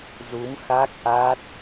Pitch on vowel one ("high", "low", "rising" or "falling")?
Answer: rising